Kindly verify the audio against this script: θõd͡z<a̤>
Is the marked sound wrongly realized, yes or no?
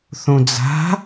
no